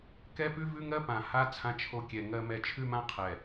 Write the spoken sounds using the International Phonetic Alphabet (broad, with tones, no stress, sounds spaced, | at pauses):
k ɛ˦ p ʉ˦ v ʉ˦ ŋ ɜ˦ p ã˨ h a˦ t͡sʰ ã˦ t͡ʃʰ o˦ kʲ ɛ˨ ŋ ɜ˦ m ɛ˦ t͡ʃʰ ʉ˦ m ã˦ qʰ ɛ˨